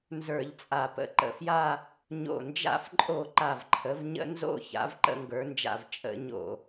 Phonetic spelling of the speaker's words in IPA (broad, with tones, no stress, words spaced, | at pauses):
nzə˞˧˩˧ʎt͡sʼa˨˩pə̰˩˧ ǃə̰˨˩fja˥˧ | ɲo̰˨˩nd͡ʒa̰˧˩˧fǃʼo˧˩˧ ǃa˨˩vǃʰə˩˧vɲə̰˧˩˧ nzo̰˥˧ ça̰˩˧vǃə̰˧˩˧ŋɡə˞˩˧nd͡ʒa̰˨˩v t͡ʃʼə̰˧˩˧ ɲo̰˧˩˧